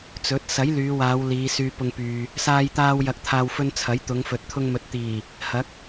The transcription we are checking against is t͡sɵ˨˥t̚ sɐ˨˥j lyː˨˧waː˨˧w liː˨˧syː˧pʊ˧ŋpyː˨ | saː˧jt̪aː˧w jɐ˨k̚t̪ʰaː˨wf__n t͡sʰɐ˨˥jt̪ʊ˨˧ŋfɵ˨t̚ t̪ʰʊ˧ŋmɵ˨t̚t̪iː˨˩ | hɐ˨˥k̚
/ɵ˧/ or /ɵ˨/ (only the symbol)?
ɵ˧